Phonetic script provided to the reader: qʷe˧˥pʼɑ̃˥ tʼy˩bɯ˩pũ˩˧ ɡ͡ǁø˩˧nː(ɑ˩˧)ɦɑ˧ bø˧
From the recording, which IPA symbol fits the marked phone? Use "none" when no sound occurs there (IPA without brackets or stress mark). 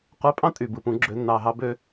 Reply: ɑ˩